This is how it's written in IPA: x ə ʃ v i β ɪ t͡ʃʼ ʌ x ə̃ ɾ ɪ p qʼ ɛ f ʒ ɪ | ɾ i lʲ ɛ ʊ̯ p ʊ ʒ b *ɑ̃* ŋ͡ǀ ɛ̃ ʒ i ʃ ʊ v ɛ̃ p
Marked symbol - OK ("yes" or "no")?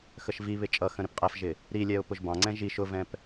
yes